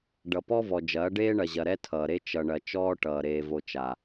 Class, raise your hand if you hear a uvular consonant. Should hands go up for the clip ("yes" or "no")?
no